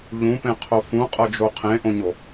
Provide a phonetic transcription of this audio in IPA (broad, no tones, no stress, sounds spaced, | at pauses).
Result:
ʎ ũ p ẽ qʰ o f ũ qʼ ɤ d͡ʒ o qʰ ẽ ʔ õ ɲ o